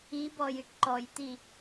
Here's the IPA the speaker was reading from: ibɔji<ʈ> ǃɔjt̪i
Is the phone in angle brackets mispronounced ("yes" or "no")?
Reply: no